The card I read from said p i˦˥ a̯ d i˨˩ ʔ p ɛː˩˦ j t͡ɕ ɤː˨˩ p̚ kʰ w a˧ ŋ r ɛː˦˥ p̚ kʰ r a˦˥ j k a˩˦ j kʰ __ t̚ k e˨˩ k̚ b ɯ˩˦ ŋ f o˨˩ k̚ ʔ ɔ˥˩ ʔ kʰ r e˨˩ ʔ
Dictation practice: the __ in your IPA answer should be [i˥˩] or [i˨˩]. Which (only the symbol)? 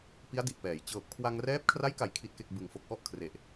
i˨˩